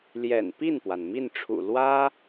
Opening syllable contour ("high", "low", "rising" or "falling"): low